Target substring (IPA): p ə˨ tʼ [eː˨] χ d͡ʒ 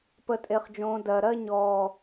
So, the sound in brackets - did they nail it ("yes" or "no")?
no